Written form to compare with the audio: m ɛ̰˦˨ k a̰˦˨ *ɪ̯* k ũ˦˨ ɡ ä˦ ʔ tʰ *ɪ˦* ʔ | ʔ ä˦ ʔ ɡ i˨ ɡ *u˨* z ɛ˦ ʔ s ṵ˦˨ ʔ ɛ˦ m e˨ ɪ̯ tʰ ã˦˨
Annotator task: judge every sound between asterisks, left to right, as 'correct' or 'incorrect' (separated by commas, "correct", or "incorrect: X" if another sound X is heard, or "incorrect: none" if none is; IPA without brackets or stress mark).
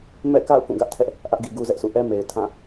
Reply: incorrect: ʊ̯, incorrect: ɛ˦, incorrect: u˦